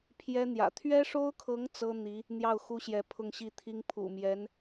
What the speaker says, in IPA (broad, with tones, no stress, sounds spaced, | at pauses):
pʰ j ɛ˥ n̪ j ä̰˨˩ t̪ʰ ɥ ɛ˥ ʂ o˥ ʊ̯ kʰ ɤ˧˥ ŋ t͡s ɤ˥ n̪ i˧˥ | n̪ j ɑ˥˩ ʊ̯ x u˥ ɕ j ɛ˧˥ pʰ ʊ˥˧ ŋ ɕ i˥˩ t̪ʰ i˥ ŋ pʰ ṵ˨˩ m j ɛ˧˥ n